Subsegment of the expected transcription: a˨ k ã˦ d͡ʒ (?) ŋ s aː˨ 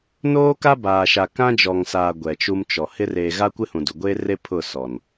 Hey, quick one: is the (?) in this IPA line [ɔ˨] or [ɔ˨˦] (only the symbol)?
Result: ɔ˨